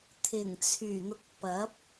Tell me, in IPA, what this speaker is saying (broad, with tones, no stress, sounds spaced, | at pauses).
t̪ʰ ɪ˨˩ ŋ t͡sʰ yː˨˩ n̪ ʊ˨ k̚ p ɐ˨˥ p̚